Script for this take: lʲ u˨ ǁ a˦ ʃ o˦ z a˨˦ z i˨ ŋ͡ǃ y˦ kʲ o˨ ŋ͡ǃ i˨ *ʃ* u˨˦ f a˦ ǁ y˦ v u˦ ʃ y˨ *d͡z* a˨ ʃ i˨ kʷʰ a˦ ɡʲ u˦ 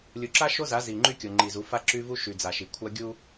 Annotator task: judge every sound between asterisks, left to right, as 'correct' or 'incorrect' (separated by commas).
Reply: incorrect, correct